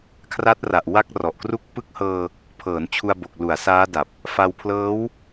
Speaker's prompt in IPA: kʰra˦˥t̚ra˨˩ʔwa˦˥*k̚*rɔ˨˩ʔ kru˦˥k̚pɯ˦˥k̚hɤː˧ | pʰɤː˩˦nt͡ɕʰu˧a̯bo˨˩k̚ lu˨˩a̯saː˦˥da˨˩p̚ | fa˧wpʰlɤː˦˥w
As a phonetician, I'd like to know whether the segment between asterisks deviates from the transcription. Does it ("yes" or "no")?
no